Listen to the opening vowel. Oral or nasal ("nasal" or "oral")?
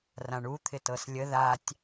nasal